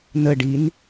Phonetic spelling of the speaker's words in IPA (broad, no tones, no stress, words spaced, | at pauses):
nəɖin